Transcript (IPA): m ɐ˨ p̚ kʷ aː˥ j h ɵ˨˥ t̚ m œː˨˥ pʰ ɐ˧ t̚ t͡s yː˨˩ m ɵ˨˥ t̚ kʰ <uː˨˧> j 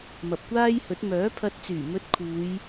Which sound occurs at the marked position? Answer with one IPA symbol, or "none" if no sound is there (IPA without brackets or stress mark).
uː˨˧